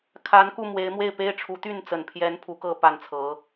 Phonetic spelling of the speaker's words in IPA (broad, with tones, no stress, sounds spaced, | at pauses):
kʰ a˧˥ n k u˥˩ m w e˧˥ ɪ̯ m w e˥˩ ɪ̯ p e˥ ɪ̯ ʈ͡ʂʰ u˧˥ t̪ y˥˩ n t͡s ə˨˩ n pʰ j ɛ˧˥ n pʰ u˧˥ k ɤ˥˧ p a˥˩ n t͡sʰ ɤ˧˥